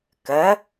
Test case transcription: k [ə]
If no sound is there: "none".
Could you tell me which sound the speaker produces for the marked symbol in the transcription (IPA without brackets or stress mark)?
ə